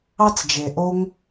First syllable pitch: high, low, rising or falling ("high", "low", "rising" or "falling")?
high